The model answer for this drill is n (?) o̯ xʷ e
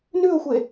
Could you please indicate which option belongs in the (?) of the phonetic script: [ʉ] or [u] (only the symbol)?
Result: ʉ